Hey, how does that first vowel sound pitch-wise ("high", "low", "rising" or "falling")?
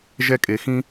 high